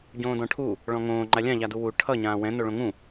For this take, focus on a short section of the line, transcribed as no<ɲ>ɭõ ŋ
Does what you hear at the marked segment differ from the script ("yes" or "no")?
yes